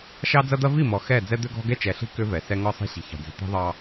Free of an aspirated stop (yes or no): yes